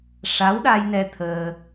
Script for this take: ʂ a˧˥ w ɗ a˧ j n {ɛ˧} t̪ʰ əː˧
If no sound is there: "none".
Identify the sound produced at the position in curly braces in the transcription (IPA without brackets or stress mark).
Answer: ɛ˧